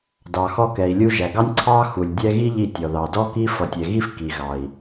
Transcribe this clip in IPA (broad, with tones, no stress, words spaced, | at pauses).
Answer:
dɑ˨ xɔ˦kɛ˨i̯lʲu˦ʒæ˨ ɡɑ˦nʲǀʰɑ˦ xu˨lʲ dʲɛ˦ ɣi˦ ʎi˦ tʲɔ˨ðɑ˨dɔ˦ ki˦fʌ˨tʲɛ˨ɣi˦f ki˨ɣɑ˨i̯